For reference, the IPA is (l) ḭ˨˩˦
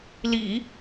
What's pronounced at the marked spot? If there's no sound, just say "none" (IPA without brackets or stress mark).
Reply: l